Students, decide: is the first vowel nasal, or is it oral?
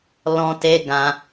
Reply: nasal